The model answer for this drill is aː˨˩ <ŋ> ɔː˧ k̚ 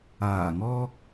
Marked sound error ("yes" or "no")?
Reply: no